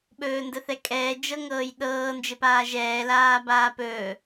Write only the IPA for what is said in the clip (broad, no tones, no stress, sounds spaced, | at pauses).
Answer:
ɓ ɵː n d ə θ ɛ kʼ ɛː d͡ʒ ɤ ŋ ɤː j ɗ ɤː n d͡ʒ ɘ p aː ʒ ɛː l aː b aː p ɵː